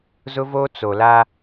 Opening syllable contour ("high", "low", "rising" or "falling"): high